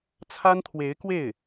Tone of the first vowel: high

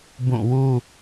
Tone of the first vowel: falling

